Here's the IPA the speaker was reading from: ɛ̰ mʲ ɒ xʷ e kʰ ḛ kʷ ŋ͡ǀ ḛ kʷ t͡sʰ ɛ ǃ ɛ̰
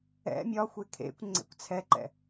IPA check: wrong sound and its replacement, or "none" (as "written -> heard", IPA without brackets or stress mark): none